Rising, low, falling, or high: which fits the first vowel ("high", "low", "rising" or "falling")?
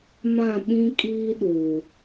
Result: falling